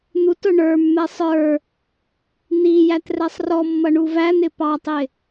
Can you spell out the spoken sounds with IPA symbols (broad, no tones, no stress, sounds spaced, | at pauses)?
n̪ u t ʊ ɳ ə˞ mː ɛ sˤ ə˞ | n̪ i j æ t r ɛ sˤ r ɔ mː ʌ ɳ u v æ n̪ ɪ p ɑ tˤ ɪ